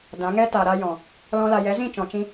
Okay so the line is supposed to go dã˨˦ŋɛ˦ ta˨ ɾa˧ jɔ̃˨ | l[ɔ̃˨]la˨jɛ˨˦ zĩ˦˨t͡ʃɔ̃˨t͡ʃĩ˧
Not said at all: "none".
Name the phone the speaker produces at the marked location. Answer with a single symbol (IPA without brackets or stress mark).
ɔ̃˧